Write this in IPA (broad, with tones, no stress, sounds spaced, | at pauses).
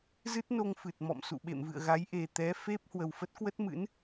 z ɨ˦˥ t̚ n o˧ ŋ f ɨ˨˩ t̚ m ɔ̰˧˨ m s ṵ˧˨ ɓ ḛ˧˨ m v ɨ̰˧˨ ə̯ ɣ a˨˦ j ʔ e˨˩ t̪ ɛ˨˦ f e˦˥ p̚ h w ə˨˩ w f ə˦˥ t̚ k w ə˦˥ t̚ m ɨ̰˧˥ n